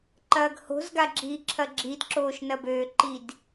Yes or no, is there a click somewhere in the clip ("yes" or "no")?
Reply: yes